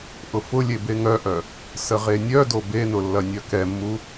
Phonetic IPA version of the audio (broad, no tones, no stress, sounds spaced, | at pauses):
ʔ ʊ f ʊ lʲ e b e ŋ œ ʔ œ | s ə ʁ e nʲ œ d o b e n ʊ lː ɐ nʲ œ k ɛ mː u